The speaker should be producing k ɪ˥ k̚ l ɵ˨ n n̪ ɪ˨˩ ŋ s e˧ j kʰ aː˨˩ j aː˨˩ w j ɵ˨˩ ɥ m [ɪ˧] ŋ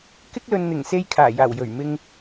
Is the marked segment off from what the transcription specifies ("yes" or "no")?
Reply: no